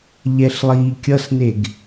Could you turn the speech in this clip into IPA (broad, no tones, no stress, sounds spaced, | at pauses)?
ʎ ɛ ɬ lˠ iː kʲ ʌ s n e ɡ